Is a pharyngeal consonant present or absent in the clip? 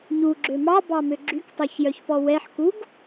present